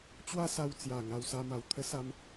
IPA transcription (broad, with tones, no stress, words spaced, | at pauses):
t͡ɕwa˦sa˧wt͡sja˨˩ ŋa˧wsa˧ma˨˩w t̪ʰə˦sa˧m